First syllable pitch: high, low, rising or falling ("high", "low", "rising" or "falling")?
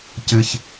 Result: low